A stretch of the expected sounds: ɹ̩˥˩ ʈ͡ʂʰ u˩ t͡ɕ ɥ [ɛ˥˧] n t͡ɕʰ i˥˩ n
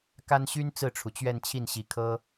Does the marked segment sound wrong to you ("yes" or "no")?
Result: no